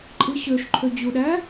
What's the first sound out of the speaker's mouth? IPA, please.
ǃʼ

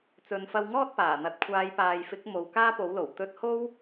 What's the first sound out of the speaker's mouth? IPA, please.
t͡s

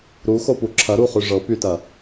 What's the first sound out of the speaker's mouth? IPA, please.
ɾ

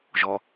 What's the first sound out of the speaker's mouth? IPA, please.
ʒ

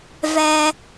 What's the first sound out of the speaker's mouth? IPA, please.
v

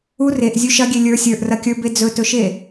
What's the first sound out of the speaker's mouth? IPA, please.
u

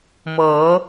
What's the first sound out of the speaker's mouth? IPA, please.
m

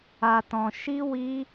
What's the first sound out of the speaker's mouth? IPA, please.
a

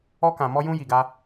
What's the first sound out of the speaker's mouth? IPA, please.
ɔ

